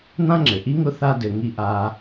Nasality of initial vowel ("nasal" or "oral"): nasal